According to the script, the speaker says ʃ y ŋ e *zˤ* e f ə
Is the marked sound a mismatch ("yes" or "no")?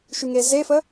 yes